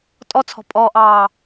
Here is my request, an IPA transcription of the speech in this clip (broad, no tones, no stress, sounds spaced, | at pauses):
tʼ ɔ t͡sʰ ɔ̤ pʼ ɔ ʔ ɑː